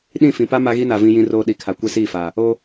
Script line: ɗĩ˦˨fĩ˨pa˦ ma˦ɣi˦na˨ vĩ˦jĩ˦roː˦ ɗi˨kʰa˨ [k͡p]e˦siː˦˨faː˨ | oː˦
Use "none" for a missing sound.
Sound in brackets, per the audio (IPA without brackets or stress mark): kʷ